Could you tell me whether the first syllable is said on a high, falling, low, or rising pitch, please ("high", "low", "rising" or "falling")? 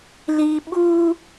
low